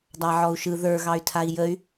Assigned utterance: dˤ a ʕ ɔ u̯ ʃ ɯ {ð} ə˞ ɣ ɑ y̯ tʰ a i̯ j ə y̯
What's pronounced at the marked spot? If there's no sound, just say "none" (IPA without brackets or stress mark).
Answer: ð